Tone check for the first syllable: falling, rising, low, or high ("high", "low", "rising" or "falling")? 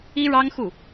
high